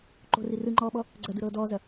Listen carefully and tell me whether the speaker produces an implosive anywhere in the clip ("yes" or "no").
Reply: yes